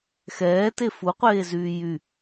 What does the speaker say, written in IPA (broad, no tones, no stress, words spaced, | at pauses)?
xɛːte fuqʷeːzyː jy